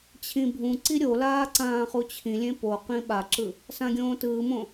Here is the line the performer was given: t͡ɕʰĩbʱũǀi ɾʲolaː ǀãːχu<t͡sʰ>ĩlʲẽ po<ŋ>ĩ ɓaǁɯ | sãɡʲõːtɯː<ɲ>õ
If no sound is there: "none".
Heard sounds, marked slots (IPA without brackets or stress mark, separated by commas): t͡ɕʰ, q, m